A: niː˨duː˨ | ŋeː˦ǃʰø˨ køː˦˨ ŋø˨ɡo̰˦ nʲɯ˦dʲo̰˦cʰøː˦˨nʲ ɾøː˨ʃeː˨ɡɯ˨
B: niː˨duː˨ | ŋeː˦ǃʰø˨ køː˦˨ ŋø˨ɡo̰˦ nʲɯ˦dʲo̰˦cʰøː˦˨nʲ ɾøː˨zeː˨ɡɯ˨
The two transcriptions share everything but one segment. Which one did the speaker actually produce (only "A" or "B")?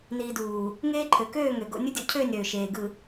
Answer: A